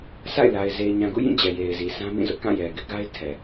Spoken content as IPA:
sʰ a̰˦˨ ɪ̯ l a˨ ɪ̯ z e˨ ɪ̯ ɲ ã˨ ɡ ṵ˦˨ j ĩ˦˨ d͡ʑ ɛ˨ j e˨ ɪ̯ z i˨ sʰ ã˦ m ĩ˦˨ z ʊ˦ ʔ k ã˦˨ j ɛ˨ ɡ ɪ˦ ʔ ɡ a˦ ɪ̯ tʰ ɛ˨

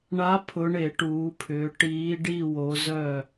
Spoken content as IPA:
ɳ a˨˦ pʰ ʊ˨˦ ɳ e˧˩˧ ʈ uː˨˦ pʰ ʏː˨˦ ʈ iː˨˦ ɖ i˥˨ w o˨˦ z œ˥˨

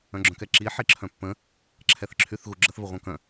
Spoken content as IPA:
œ̃ ɡ͡ǁ œ̃ k ɛ ǁ i ħ i ǁʰ œ̃ pː ə̃ | ǁʰ ɛ θ ǁʰ y θ ɣ u ɡ͡ǁ ə θ v ə ʁʷ œ̃ k œ̃

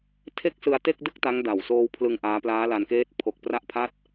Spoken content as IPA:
tʰ e˥˩ k̚ s ɯ˧ a̯ t e˥˩ k̚ d ɯ˥˩ k̚ t a˦˥ ŋ d a˨˩ w s oː˧ w pʰ l ɯ˧ ŋ ʔ aː˦˥ p l aː˦˥ l a˧ n k eː˦˥ t̚ pʰ o˨˩ k̚ p r a˦˥ ʔ pʰ a˦˥ t̚

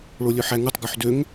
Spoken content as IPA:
ɭ o lʲ ɵ ħ æ ŋ u tˤ ɡ œ ħ d ø ŋ

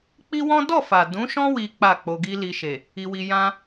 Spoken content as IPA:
k͡p i˦ w ɔ̃˦ d ɔ˦˨ f a˨ d ũ˨˦ ʃ ɔ̃˦ w i˦ k͡p a˦˨ k͡p o˧ ɡ i˦ l i˧ ʃ e˨ | i˧ w i˧ j ã˦

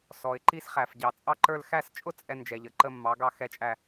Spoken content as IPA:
s ɔ˨ ɪ̯ ǃ i˥ s χ æ˨ f ɟ ɑ˨ t͡sʼ ɑ˥ ǃ ə˞˥˧ l x æ˥˧ s t͡ʃʼ ʊ˥ t͡sʼ ɛ˥ n d͡ʒ ɛ˨ ʎ ə˨˥ ǃ ə˥˧ mː ɑ˨˥ ɡ ɑ˥˧ x ɛ˥˧ t͡ʃʼ æ˥˧

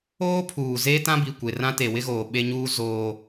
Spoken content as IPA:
oː˦ pʰ uː˨ z eː˦ t ã˦ b i˨ kʷ e˨ r ã˦ t e˨ w ɪ˦ ɣ oː˨ ɓ e˦ ɲ uː˦ z oː˦

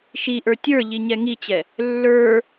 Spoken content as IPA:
ʃ i ʔ ə˞ tʲ ə˞ ʎ i ɲ ɛ ŋ i t͡ɕ ɛ | lː ə˞

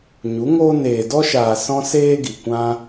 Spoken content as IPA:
ɲ u˨˦ ŋ oː˦ n eː˨ d ɔ˧ ʃ aː˨ s ɔ̃˦ s eː˦ ɡ i˨ kʷ ã˦

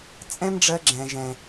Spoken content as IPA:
t͡sʼ ɛ̃˦ m ɖ͡ʐ ɜ˧ ɡ͡ǁ ɛ̃˨ ʒ ɛ̃˨

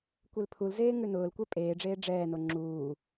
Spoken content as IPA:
kʷ e l pʰ u l z eː ŋ ʉ n ʊː l kʷ ɛ pʼ eː ɖ͡ʐ eː ɖ͡ʐ ɛː n o ŋ͡ǁ uː

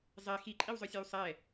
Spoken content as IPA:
zˤ ɛ x i ǃʼ i w zˤ œ sʲ a w sˤ ɛ

